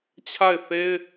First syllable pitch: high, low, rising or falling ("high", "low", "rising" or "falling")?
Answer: falling